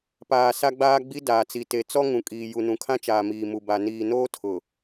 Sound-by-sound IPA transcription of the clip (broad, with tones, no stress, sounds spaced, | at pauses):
p aː˨ s a˦ ɡ͡b aː˦ ɡ͡b i˦ d aː˨ t͡s i˨ t e˨ t͡s ɔ˦ ŋ ũ˨ kʼ iː˨ j u˨ n ũ˨ kʰ ã˦ t͡ʃ aː˨ m iː˨ m u˨ b a˨ n iː˨ n oː˦ tʰ ʊ˨